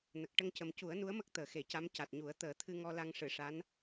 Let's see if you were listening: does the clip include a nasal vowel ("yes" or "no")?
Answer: no